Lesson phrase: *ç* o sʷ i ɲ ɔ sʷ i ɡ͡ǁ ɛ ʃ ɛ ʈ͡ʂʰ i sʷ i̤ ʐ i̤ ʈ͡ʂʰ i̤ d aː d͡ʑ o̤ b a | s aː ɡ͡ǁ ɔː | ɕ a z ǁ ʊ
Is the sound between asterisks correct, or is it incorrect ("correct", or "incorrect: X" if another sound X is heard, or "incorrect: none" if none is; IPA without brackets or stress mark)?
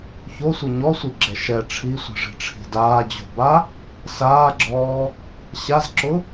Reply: correct